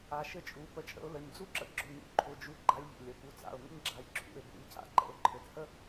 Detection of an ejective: present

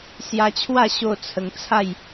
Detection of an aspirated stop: present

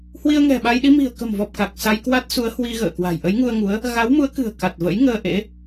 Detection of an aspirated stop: absent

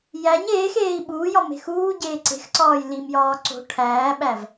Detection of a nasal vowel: absent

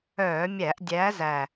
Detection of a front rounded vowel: present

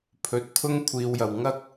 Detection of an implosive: absent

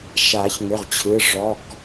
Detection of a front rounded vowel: present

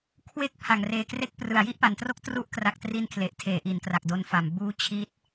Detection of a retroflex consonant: absent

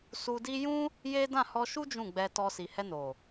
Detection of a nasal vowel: present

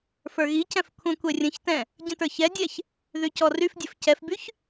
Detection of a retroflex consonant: absent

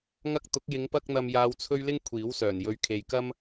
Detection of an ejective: absent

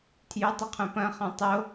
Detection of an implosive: absent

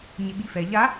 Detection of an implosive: present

